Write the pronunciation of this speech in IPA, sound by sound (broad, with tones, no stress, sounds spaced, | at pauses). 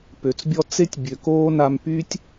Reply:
p ø˩ t͡s bʲ ɔ˦ t͡s e˥ tʲ bʲ ø˨ k oː˥ n a˦ m p y˥ tʲ